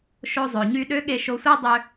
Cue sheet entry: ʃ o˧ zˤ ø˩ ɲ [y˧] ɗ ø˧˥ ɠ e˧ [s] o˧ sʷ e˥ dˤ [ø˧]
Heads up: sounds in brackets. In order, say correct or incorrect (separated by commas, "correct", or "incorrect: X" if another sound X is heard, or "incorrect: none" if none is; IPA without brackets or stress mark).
correct, incorrect: ʃ, correct